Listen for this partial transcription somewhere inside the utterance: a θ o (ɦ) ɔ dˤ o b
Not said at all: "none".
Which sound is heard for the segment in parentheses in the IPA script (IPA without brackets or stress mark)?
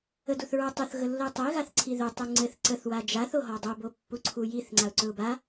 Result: ɦ